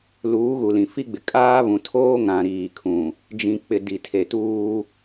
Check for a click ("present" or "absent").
absent